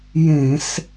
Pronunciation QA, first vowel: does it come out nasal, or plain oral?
nasal